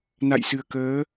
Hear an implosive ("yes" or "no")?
no